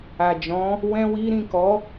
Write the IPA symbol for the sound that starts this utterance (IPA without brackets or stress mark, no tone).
a